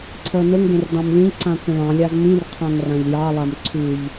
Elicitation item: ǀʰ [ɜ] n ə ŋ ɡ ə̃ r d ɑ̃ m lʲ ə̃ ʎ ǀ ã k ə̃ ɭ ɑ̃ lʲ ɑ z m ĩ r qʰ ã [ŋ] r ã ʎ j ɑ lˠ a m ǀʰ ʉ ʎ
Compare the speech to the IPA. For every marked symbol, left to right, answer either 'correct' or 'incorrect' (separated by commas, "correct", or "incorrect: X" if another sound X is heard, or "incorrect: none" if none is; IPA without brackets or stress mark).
correct, correct